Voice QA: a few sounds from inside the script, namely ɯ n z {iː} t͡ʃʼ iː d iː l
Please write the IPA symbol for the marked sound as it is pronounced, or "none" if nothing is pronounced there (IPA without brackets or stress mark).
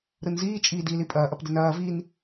iː